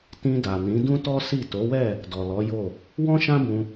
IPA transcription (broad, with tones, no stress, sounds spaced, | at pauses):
t ĩ˧ d a˨ n ĩ˨˦ d ũ˦ t ɔ˦ s i˦˨ t o˨˦ w ɛ˦˨ | d ɔ˨ l ɔ˨˦ j o˦˨ | w ɔ̃˦ ʃ ã˦ b ũ˧